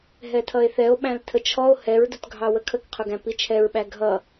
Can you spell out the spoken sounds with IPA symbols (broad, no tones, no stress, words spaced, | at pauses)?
ɦɛtʰʌe̯θɛo̯ ɓæ̃ltʰət͡ʃʰɔo̯ hɛɹdʊtɡʱɑ wəkʰəkqʰʊɡæ̃ pit͡ʃʰɛɹɓæ ɡʱʌ